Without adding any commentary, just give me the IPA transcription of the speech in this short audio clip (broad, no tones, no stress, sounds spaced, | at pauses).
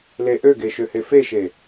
l e ʔ ø ɡ e ʃ ø h e f e ʃ e